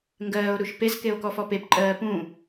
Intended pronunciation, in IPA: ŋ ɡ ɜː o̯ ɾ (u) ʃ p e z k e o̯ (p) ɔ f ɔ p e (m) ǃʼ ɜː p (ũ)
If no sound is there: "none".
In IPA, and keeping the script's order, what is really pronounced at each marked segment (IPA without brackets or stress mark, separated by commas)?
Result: u, k, p, ũ